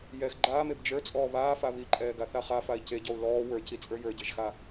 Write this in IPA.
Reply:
j ɛ x ɡ͡ǃ aː m e b d͡ʒ ə˞ t͡sʼ ɔː β aː f a β i ǃʼ ɛː ɡ a θ a χ a f a i̯ c e ɟ ɔ u̯ l ɔː w ə˞ c i t͡sʼ ə˞ j ə˞ ɟ e ʒ x a

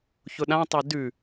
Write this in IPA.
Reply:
ç ʊ ɗ ã tˤ e d ʉ

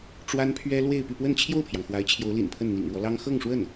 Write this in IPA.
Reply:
ʈ͡ʂ w a˥ n pʰ ɥ ɛ˥ l w e˥˧ ɪ̯ p y˥˧ p w ə˥˧ n t͡ɕʰ j o˥˩ ʊ̯ pʰ j ɑ˩ ŋ x w a˧˥ ɪ̯ t͡ɕʰ j o˧˥ ʊ̯ l ḭ˨˩ n pʰ ə˥˩ n n̪ ḭ˨˩ ŋ ɻ w ɔ˦ l ɑ˥ ŋ x ɤ˥˧ ŋ ʂ w ə˥˩ n

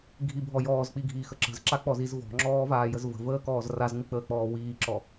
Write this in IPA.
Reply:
ɡʱ i bʱ ɔ j ɔː z k͡p i ɡʱ iː x ə ǁ ə̤ z ǁ a k͡p ɔ z i z v ɔ̤ ŋ͡ǁ ɔː v aː j ə z v ə̤ v əː k ɔː z r a z ŋ͡m i k͡p əː k͡p ɔː w iː ǁ ɔ

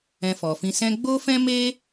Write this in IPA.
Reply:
ɛ̃˧ f ɔ˨ f ĩ˧ s ɛ̃˧ ɡ͡b o˦ f ɛ̃˦ m e˦

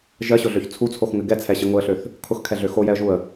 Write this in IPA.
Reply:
ʒ ɜ ɕ ʊ ɮ ø ç t͡sʰ u t͡sʰ o x ŋ ɘ ɡ ɛ t͡sʰ ɛ ɕ ə ŋ ʊ ə̯ ɬ ø θ | kʰ ʊ x kʰ ɛ ɮ ø x o j ɛ ə̯ ʒ u ə̯

